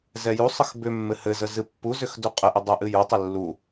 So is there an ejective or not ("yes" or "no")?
yes